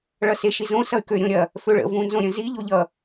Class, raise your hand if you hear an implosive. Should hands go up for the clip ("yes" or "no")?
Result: no